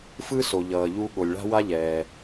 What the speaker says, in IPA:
f ɯ˥ s o˩ ʎ ʌː˩ ʎ u˧ ɠ o˩ lʲ ɭ a̤˥ w a˥ ʎ ɛː˩

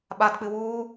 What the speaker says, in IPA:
ɓ a d k͡p ɨ w uː

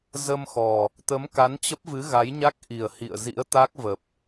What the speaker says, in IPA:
z ə˧ m x ɔ˨˩ | t̪ ə˨˦ m k a˨˦ n t͡ɕ ə˦˥ p̚ v ɨ˨˦ ɣ a˨˦ j ɲ a˦˥ k̚ ʔ i˨˩ ə̯ h ḭ˧˨ ə̯ z ḭ˧˥ ə̯ t̪ a˦˥ k̚ v ə˨˩ p̚

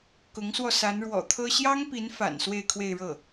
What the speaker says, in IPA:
k ʊ˧˥ ŋ s w ɔ˧ s a˧˥ n ɻ w ɔ̰˨˩ t̪ʰ ɤ˥ ɕ j ɑ˥ ŋ p i˧˥ n f a̰˨˩ n s w e˥˧ ɪ̯ kʰ w e˥˧ ɪ̯ ɻ ɤ˥˩

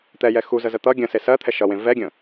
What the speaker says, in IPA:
t̪ ɛ j ɛ x u z ə z ə t̪ ʌ ɡʲ ə̃ s e s ɜ t̪ʰ ɛ ʃ ʌ w ẽ v ɛ ɡʲ ə̃

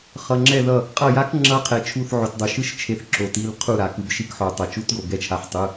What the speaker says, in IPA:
χ ʌ˩ ŋ͡ǁ ɛ˧˩ ð ʌ˧˩ | qʼ ʌ˧˩ j a˧˥ k ŋ͡ǁ ʌ˧˥ qʰ ɛ˩ t͡ʃʰ u˧˩ θ ʕ o˩ t dˤ o˩ ʃ ɯ˧˥ ʃ t͡ʃʰ e˩˧˩ θ ǁ o˩ t i˩˧˩ l qʰ u˧˩ ɾ a˩ k ɯ˩ b ʃ i˧˩ k ħ o˩ tˤ ʌ˩ t͡ʃ u˧˥ t ɡ o˩ ɡ ɛ˧˩ t͡ʃʰ a˩˧˩ ħ tˤ ɯ˩˧˩

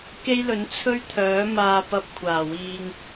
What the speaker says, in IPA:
k e˥ j l ɵ˨˥ n t͡sʰ ɵ˥ ɥ t̪ʰ œː˨˥ m aː˧ p ɐ˧ p̚ kʷʰ aː˨˩ w iː˧ ŋ

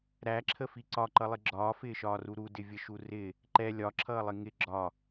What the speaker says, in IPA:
ɾ æ ǁʰ ə f i ǀ ɒ ǃ ʌ lˠ ɪ ɡ͡ǁ ɒː f ɪː ʃ ɒː r u ɾ u d ɪ vʲ ə ʃ u r ɪ | ǃ ɛ lʲ ɒ ǁʰ ʌː lˠ ɪ ŋ ɪ ɡ͡ǁ ɒ

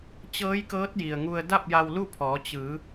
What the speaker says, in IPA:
t͡ɕ ɤː˧˥ j k ɤː˧˥ t̚ j i˩ ə̯ ŋ u˧ ə̯ d a˥˨ p̚ j a˧ w l u˥˨ pʰ ɔː˩˧ t͡ɕ ɯː˩˧

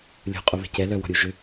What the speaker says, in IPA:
lʲ ṳ qʼ u β ɛ̤ c ɛ l œ w ɔ̤ ɾʲ u ʒ ʏ

